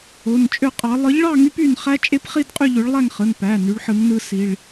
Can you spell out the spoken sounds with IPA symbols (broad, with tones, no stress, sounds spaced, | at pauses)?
o˩˧˩ n t͡ʃʼ ø˦˥ qʼ ɑ˨˥ lˠ ɯ˨˥ ʎ ɭ ɑ˥˧ ŋ y˦˥ p y˥˧ n χ æ˦˥ t͡ʃʼ e˦˥ p χ i˥˧ d qʼ y˥˧ ʎ ø˨˥ ɭ lˠ æ˥˧ ŋ χ ɯ˩˧˩ n p æ˩˧˩ n y˨˥ ɭ ħ ɯ˨˥ ŋ n ɯ˦˥ s i˩˧˩ ɭ